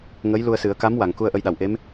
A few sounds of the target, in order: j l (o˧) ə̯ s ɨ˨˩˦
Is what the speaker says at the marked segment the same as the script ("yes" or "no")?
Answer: no